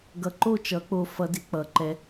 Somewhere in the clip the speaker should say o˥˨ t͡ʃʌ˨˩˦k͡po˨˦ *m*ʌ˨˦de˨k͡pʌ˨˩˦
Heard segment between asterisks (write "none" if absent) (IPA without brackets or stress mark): f